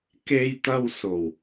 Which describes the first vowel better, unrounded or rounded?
unrounded